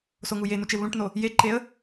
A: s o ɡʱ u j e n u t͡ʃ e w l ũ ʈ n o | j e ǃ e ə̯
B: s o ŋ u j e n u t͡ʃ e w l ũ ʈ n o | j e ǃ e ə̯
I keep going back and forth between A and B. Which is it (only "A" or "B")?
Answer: B